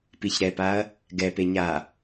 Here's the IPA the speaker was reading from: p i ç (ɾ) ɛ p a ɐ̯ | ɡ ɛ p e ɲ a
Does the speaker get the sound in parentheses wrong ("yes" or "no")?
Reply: no